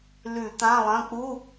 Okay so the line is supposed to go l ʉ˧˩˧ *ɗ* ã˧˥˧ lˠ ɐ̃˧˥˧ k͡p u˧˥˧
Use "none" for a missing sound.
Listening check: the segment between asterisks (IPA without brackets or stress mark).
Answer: t̪